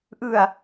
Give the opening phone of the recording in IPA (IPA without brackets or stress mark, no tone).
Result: ʔ